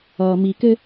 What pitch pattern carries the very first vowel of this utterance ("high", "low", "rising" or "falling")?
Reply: low